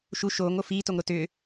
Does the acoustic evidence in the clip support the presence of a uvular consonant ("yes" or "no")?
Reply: no